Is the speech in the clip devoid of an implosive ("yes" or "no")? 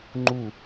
yes